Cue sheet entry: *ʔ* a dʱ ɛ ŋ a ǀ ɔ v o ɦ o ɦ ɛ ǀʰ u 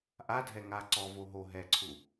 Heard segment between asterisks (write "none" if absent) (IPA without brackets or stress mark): ʔ